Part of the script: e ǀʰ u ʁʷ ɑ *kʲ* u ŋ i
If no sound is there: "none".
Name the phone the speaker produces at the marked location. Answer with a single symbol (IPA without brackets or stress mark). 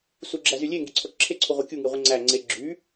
kʲ